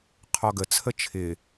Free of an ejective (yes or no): yes